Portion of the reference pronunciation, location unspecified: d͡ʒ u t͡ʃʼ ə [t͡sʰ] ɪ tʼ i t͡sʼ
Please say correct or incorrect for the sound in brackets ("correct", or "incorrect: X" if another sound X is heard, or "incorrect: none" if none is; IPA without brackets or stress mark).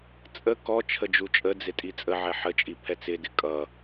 incorrect: d͡z